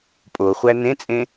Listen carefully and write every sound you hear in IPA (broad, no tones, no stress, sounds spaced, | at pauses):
pʼ o χʷ æ n ẽ t͡sʼ ẽ